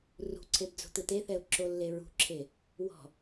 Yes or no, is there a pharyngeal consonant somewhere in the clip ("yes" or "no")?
no